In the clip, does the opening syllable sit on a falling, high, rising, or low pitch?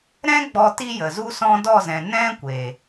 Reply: high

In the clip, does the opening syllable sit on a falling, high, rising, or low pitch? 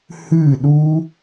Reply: falling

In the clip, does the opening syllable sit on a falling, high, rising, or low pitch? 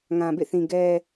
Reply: low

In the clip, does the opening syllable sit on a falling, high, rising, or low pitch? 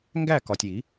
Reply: falling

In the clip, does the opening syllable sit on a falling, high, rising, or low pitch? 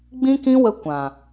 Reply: high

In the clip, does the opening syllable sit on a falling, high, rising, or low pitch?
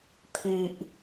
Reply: low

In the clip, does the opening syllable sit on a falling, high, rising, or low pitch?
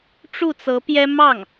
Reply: falling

